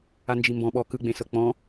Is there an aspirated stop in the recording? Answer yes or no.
no